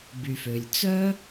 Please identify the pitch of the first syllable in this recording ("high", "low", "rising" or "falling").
low